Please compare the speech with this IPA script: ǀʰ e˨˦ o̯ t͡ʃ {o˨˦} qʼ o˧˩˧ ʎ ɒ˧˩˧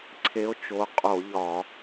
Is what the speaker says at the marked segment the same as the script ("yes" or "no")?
yes